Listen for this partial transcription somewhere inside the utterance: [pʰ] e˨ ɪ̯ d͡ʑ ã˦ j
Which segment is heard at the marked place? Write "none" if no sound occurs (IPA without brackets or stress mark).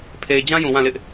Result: pʰ